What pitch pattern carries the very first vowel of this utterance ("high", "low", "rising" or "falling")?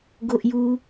high